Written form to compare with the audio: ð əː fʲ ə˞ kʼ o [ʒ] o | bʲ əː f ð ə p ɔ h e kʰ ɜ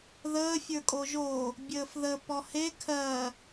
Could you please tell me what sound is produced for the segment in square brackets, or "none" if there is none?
ʒ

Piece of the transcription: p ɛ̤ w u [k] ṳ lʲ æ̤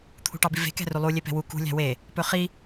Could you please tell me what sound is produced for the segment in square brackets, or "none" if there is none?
k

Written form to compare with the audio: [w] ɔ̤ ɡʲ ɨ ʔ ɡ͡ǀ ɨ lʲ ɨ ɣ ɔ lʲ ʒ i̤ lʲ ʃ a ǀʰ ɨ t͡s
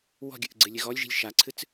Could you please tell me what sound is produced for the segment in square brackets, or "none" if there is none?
w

